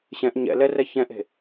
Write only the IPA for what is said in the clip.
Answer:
ɕ ɛ̃ ʔ ɲ ɛ̰ l ɛ r ɛ ç ɛ̃ ʔ e̤

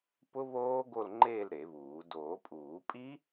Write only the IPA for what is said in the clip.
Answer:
p ʊ˦˥ β oː˦˥ ɡ o˥˧ l ŋ͡ǃ eː˥˧ l ɾ e˨˩˦ β uː˨˩˦ d oː˨˩˦ pʼ uː˨˩˦ pʼ i˦˥

